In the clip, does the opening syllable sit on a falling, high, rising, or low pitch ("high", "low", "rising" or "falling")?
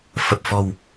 low